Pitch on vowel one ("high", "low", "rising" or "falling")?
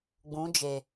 rising